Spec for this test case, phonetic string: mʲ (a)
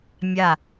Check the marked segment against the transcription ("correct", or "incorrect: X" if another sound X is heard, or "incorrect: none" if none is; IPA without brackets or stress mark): correct